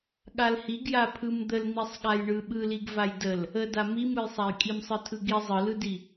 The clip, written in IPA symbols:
ɠ a l h i ɡ j a pʰ ɯ m d̪ ə l n̪ i sˤ ɠ a j ɳ ɯ ɓ ɯ l i ɡ v a j d ə l | ə d a m i m ɯ j sˤ a j kʼ i m sˤ ɯ tʰ ɯ ɡ i zˤ ɯ l ɯ d i

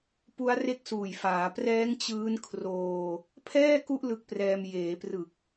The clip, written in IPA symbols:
p u˦˥ a̯ r e˦˥ k̚ s uː˨˩ j f aː˩˦ p r ɛː˦˥ ŋ t͡ɕ ɯː˦˥ n kʰ r oː˧ | pʰ ɛː˥˩ k u˦˥ ʔ l ɯ˦˥ k̚ p r ɛː˧ m j eː˩˦ p r ɯ˨˩ k̚

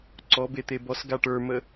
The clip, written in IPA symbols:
ǀ ɔ b e t̪ e b ɔ s ɡ a ʈ ə˞ m ə

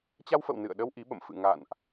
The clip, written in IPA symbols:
t͡ɕ a˧ w f ə̰˧˨ w n ɨ̰˧˨ ə̯ ɗ ə˧ w ʔ i˨˦ ɓ ə̰˧˨ m f ɨ̰˧˨ ŋ a̰˧˨ n ʔ

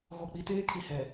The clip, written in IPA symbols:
ɣ ɔ˨ k͡p i˨ t eː˦ kʰ i˨ h ɛ˨

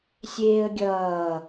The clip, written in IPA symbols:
sʲ eː ə̯ ɡʲ ʌː

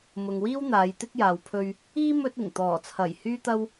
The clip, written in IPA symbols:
m ʊ˨ ŋ w iː˥ w n̪ aː˨˧ j t̪ ɪ˥ k̚ j aː˨ w pʰ ɵ˧ ɥ | iː˥ m ɵ˧ t̚ ɪ˨˩ ŋ t̪ ɔː˨˩ t͡sʰ ɐ˨˩ j h yː˥ t̪ ɐ˥ w

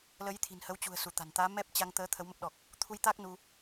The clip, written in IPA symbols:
l ə˨˦ j t̪ʰ i̤˨˩ n h ə˨˦ w t͡ɕ ṳ˨˩ ə̯ s u˧˩ t̪ a̤˨˩ n t̪ aː˨˦ m ɛ˦˥ p̚ t͡ɕ a˧ ŋ t̪ əː˨˦ t̪ʰ ə˨˦ w m ə˦˥ p̚ ɗ ɔ˨˩ k̚ | t̪ʰ u˧ j t̪ aː˦˥ k̚ n u˧

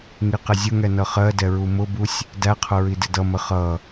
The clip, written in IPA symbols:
ŋ i q ɪ zʲ ʊ ŋ ɛ n ʌ χ ɜ d ɛ ɹ u m ʊ b u sʲ | d æ qʰ ʊ ɹ i d ɪ d ʌ m ə χ ʌ

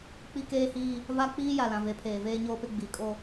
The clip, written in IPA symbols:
k͡p i˦ k eː˦ h iː˦ | v a˦ k͡p iː˦ j a˨ l ã˨ v e˨ pʰ eː˨ v eː˦ ɲ oː˦ p ɪ˦ ɡ͡b i˨˦ kʼ o˦

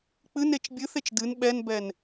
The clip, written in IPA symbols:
k͡p ɨ n e t͡ʃ bʲ ɨ θ e t͡ʃ d ɨ n ɓ ɛ n b ɛ n

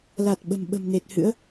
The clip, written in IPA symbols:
l a˨˩ t̚ ɓ ə̤˨˩ m ɓ ə̤˨˩ m n e˨˩ t̚ h ɨ̰˧˥ ə̯

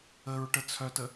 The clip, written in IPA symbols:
ə ɹ ʈ ə t͡sʰ œ t ə

